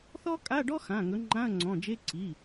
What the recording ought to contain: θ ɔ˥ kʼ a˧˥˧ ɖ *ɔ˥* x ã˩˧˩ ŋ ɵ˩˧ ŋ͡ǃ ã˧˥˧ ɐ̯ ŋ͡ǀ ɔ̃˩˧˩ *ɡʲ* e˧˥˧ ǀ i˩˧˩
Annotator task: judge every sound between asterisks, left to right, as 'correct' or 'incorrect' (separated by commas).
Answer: correct, incorrect